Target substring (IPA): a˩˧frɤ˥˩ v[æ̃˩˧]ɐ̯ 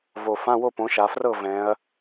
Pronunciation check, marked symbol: incorrect: ɛ̃˩˧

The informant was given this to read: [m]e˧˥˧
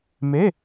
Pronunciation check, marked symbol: correct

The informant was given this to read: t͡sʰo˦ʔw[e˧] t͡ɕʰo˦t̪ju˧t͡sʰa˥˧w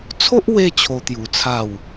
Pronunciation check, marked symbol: correct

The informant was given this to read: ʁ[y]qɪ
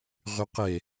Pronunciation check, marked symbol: correct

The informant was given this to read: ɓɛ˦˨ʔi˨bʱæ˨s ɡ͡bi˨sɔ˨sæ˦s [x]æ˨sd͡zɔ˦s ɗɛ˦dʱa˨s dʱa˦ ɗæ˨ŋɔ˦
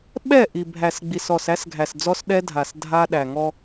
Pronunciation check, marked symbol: incorrect: ɡʱ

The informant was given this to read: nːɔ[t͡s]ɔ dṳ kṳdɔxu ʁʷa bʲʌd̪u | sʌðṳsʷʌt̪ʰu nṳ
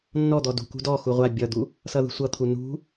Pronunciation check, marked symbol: incorrect: d̪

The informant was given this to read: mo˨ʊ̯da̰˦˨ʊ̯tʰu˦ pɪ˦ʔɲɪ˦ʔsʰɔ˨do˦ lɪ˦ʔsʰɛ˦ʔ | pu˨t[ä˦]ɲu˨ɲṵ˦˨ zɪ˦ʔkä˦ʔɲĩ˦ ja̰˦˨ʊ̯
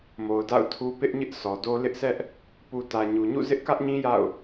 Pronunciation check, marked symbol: incorrect: ä˨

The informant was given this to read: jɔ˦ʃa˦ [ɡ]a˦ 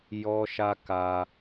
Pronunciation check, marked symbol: incorrect: k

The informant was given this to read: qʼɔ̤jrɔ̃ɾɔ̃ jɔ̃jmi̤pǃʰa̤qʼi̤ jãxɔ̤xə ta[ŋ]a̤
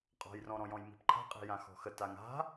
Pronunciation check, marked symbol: correct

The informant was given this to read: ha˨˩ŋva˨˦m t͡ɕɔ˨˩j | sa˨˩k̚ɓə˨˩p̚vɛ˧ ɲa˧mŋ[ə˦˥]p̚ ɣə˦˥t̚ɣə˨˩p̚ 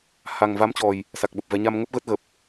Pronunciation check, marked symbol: correct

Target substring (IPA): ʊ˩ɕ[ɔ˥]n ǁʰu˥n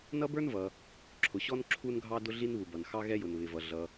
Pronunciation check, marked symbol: correct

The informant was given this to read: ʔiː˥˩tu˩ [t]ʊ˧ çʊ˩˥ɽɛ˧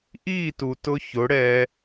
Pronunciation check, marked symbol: correct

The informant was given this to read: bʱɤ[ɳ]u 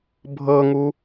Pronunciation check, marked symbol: incorrect: ŋ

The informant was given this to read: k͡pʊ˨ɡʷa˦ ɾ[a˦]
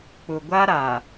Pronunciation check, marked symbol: incorrect: a˨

